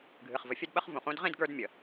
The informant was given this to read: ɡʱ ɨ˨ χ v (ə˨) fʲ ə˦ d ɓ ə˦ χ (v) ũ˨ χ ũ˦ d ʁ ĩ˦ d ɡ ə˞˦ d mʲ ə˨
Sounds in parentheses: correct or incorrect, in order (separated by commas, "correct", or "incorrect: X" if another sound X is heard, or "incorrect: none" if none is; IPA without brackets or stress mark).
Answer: correct, correct